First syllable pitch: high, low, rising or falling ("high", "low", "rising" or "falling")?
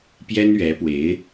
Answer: high